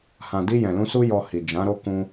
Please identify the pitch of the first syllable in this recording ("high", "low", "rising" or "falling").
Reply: low